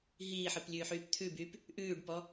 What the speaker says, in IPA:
ɦiːħɨplʲʉːħyːp t̪ʰʉbyːp | ʔʉːɖpɔ

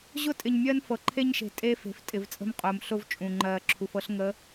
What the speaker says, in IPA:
ʑʊ˦tʼɪ˨ɲmʲɜ˦n fɤ˨ǃʰe˦ɲʃe̤˨ tʼe˦fe̤˨f tʼɪ˨vt͡sʼə̤˦mqʼʊː˨m ɬʊ˦v t͡ʃʼũ˨ŋ͡ǃɜː˨ ǁʰu˨fɤ˦ɬ ŋə˨˦

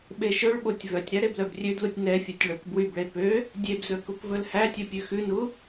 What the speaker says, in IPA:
ɓeʃɵɭɓotʲ vœtʲɾæ ɾeblœbrʲødlutʲ nɛfʲœtʲ ɭɵk bwybɭe pø | dʲebzɵ kukvɵlhætʲɵ pʲʉxʉnu

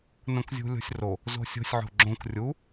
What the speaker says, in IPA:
nõkzʲṳlʲo̤sʲro | zo̤sʲo̤sʲ ʕo̤ɡ͡ǁõk rʲu

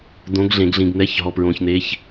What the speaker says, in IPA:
d̪õ˧˥ɡɮẽ˧ɡɮĩ˧ɡn̪ɛ˧˥˧ç ɦɔ˧pɹõ˧çn̪e˧˥ç

